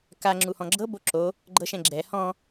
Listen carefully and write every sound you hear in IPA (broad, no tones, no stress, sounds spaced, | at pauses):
k a ŋ͡ǁ u h ɔ̃ ɡ͡ǁ ɤ b o ǁ o | ɡ͡ǃ ɤ ʃ ɛ̃ ɡ͡ǁ ɛ h ɔ̃